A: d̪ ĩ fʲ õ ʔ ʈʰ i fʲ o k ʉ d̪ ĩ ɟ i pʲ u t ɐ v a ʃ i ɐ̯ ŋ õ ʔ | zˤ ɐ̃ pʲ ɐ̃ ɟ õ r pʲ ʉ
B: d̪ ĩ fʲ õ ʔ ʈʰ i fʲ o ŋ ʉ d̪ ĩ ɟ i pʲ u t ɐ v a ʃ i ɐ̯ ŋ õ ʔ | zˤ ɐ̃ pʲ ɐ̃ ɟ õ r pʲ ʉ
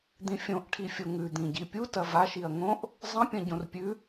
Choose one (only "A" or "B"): B